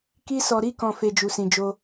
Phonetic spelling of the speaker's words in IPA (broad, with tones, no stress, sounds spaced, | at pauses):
k i˧ s ɔ˨ ɾ i˧ k ɔ̃˨ f e˧ d͡ʒ u˨ s ĩ˨ d͡ʒ o˧